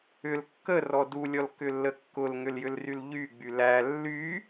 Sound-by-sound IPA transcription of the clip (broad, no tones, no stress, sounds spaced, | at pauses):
ʏ l kː ə r ɔ d u lʲ ɔ l k ʏ lː ə kː ʊ l ŋ ʏ l j ʏ l r y l ʎ y ɡ͡b y l æ lː y